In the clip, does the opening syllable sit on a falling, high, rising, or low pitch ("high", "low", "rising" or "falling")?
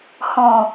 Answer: low